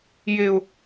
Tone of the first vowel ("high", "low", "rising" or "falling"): high